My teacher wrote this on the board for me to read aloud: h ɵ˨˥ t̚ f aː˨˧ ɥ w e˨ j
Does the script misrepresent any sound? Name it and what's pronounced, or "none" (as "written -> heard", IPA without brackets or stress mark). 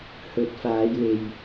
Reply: ɥ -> j